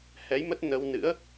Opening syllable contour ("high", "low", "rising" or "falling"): rising